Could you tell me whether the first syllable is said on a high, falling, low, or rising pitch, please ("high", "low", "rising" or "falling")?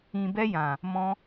low